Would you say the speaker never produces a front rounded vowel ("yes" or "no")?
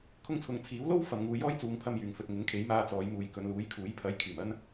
no